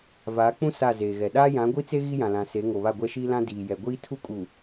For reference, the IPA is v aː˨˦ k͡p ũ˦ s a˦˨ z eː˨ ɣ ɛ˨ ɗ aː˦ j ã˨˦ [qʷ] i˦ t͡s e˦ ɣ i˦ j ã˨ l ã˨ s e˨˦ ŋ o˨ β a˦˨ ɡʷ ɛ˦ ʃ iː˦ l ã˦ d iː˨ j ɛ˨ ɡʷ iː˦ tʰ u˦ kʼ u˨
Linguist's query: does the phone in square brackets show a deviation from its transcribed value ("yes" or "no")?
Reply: yes